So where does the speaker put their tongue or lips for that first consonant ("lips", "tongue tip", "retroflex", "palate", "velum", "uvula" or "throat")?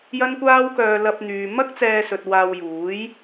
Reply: palate